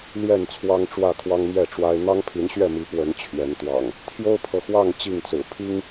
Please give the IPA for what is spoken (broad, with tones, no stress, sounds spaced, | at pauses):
l j ɛ˥˨ n t͡sʰ w ɑ˦ ŋ ʈ͡ʂ w ä˥˨ kʰ w ɑ˦ ŋ m ɥ ɛ˥˨ ʈ͡ʂ w a˦ ɪ̯ n̪ ɑ˦ ŋ pʰ i˨˦ n ɕ ɥ ɛ˥˨ m i˨˦ p w ə˨˦ n t͡ɕʰ ɥ ɛ˨˦ n t̪ w ɑ̰˨˩ ŋ | t̪ʰ j o˦ ʊ̯ pʰ ɤ˨ x w ɑ˥˨ ŋ t͡ɕ i˥˨ ŋ t͡s ɹ̩˨˩ pʰ i˦ ŋ